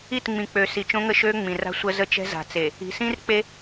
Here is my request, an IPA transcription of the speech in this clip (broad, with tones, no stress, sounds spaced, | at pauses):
i˦˨ t ŋ͡m ĩ˨ k͡p ø˨ s i˨ t͡ʃ õ˦ ŋ ə˦ ʃ øː˦ ŋ͡m ĩ˨ r a̤˦ sʷ ə˦ z ə˦ t͡ʃ ɛ̤˦ z a̤˨ t͡s e˨ | i̤˨ s ĩ˦ r k͡p e˦